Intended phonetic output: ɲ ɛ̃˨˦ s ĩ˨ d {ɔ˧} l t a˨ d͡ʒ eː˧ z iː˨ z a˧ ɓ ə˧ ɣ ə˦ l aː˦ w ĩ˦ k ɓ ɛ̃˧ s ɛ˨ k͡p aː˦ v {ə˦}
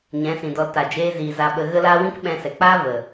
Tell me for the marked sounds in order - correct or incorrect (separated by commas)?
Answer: correct, incorrect